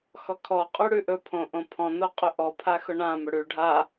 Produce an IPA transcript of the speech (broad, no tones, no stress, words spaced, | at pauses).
xɔkʰɔ qʼʉɽʉʔɵ pʰõʔõpʰɔ̃ noqʼɵʔɔ pʰaxʊɳã mɵɽʉ ɖʱa